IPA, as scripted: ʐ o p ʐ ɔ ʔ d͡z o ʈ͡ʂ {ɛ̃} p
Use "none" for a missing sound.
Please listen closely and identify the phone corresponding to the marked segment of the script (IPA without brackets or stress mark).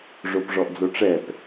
ɛ